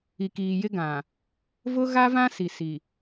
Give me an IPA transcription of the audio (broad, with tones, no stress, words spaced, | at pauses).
i˨kiː˨jɪ˦ɡã˨ | vʊ˦ɣa˦vã˦ si˨si˨